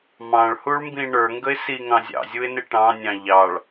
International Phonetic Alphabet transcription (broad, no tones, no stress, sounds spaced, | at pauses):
m ɑ̃ ɭ h u ɭ m b ĩ ɳ ə˞ ŋ ɡ ə ɪ̯ s i ŋ ɑ̃ zʲ ɑ̰ zʲ u ɪ̯ n ɪ ʈ ɑ̃ nʲ ɑ̃ ʎ ɑ ɭ